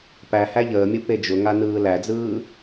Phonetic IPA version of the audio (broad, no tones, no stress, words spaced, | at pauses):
pæ hæʎəːmʲɯ ped͡ʒʊŋa nɯːlæd͡zɯː